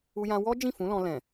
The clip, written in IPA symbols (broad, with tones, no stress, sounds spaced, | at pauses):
u˧ j ã˧ w ɔ˦ d͡ʒ ĩ˦˨ f ũ˨˦ l ɔ̃˧ l ɛ̃˨